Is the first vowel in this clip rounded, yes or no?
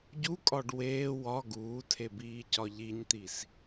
yes